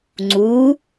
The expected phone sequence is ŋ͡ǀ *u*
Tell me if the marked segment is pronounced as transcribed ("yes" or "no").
yes